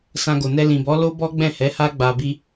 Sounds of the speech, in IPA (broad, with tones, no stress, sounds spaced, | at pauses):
s ã˧ ɡ o˨ n ɛ˧ l ĩ˨ b ɔ˨˦ l o˦ b ɔ˦ ɡ͡b ɛ̃˦˨ h ɛ˨˦ h a˦ ɡ͡b a˧ b i˦